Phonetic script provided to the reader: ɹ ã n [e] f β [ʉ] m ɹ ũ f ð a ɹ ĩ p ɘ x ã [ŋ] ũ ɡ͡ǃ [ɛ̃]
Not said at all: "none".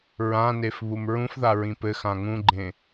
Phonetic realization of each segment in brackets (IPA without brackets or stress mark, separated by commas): e, u, ŋ, ẽ